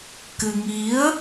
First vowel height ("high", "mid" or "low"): high